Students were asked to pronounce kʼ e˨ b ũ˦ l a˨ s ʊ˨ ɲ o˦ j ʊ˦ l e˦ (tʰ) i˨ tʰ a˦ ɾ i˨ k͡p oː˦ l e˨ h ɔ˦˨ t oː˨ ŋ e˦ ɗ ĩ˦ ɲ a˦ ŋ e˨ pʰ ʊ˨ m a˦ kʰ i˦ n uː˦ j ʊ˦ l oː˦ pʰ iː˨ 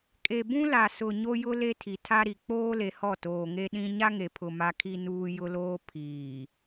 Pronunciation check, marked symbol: correct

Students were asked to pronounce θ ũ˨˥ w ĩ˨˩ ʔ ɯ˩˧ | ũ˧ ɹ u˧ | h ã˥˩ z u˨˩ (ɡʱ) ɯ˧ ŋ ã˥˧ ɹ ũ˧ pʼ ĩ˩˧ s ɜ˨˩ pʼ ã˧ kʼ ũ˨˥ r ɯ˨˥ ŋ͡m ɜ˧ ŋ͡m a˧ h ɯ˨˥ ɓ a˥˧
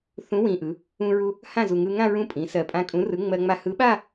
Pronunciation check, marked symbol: incorrect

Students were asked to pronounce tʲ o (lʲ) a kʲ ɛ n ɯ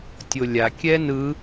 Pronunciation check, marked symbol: correct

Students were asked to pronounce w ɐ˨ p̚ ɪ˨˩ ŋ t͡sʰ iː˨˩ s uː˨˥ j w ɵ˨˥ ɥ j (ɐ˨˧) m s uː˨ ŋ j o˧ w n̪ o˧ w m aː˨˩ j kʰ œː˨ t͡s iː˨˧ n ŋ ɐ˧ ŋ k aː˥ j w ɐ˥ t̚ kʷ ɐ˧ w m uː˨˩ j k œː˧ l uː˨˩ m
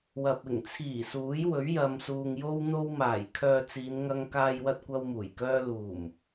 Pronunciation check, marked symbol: incorrect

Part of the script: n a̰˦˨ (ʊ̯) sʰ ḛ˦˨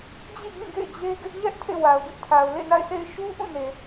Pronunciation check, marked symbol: incorrect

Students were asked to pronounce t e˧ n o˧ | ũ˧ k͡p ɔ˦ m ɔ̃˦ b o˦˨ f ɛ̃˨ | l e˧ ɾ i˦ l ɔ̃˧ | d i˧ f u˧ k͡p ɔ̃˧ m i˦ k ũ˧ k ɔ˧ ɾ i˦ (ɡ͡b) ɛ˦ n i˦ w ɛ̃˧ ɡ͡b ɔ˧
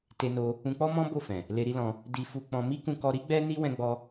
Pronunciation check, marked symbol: correct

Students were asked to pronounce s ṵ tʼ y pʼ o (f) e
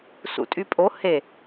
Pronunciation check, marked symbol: incorrect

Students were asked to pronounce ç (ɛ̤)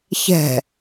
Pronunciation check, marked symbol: correct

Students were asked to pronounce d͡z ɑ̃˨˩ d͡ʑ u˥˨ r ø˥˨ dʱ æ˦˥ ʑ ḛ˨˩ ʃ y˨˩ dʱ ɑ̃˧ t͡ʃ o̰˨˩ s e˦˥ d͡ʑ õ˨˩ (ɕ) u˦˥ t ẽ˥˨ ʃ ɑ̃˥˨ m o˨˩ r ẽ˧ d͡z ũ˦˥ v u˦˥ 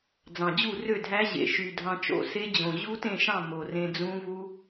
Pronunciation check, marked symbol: incorrect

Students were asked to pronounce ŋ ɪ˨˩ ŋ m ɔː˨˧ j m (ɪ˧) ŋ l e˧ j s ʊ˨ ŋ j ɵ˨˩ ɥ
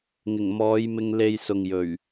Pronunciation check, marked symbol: correct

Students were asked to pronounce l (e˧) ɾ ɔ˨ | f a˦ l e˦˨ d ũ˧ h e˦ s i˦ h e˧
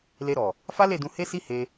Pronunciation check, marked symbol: correct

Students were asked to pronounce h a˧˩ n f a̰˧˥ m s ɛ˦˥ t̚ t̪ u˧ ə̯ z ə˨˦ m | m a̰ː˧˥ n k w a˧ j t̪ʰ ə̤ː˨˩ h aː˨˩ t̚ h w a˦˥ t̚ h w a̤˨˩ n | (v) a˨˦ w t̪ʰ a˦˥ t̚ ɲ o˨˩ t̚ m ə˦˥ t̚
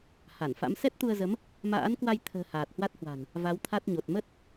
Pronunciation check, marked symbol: correct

